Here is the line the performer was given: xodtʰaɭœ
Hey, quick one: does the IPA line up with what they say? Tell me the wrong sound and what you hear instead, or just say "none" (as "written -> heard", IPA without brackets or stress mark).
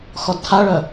o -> ɔ